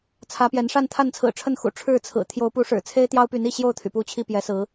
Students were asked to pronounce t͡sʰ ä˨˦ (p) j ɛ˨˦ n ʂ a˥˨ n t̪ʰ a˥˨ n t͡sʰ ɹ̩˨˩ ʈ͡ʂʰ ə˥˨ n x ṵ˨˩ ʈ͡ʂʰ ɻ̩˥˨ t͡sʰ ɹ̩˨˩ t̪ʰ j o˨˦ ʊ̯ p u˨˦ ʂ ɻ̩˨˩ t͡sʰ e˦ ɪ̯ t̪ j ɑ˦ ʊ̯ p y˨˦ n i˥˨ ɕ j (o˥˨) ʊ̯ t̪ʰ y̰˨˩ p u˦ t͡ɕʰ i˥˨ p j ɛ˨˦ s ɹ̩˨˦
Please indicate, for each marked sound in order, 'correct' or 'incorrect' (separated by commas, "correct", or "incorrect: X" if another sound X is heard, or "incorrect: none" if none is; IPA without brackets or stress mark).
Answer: correct, correct